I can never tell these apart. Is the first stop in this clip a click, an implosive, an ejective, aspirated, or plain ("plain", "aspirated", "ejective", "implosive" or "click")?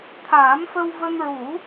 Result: aspirated